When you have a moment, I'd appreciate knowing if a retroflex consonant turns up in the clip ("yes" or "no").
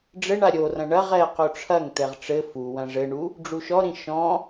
yes